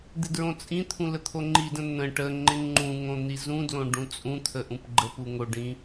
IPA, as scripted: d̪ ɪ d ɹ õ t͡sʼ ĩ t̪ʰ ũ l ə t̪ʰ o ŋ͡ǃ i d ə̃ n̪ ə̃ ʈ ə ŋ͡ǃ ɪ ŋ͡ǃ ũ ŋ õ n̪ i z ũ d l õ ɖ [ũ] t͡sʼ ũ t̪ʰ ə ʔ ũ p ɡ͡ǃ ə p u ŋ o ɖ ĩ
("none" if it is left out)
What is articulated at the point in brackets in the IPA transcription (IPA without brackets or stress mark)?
ũ